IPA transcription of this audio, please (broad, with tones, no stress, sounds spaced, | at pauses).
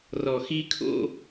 r ɔ˨ x i˧ kʰ o̰˧